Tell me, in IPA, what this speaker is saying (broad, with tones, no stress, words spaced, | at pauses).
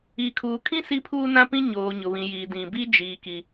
iː˨kʰuː˨kʰĩ˦ si˦pʰuː˦nã˦pĩ˦ ɲoː˨ɲʊ˨βĩ˨jiː˨ dĩ˨bi˦ d͡ʒiː˨ki˨